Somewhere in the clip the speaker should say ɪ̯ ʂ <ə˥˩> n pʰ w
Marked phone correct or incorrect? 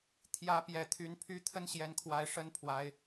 incorrect